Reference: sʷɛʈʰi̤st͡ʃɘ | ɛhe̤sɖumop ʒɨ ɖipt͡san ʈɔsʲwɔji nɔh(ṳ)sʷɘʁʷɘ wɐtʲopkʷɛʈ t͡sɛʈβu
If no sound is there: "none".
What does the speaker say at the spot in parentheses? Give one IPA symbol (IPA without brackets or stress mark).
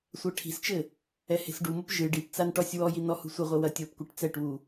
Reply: ṳ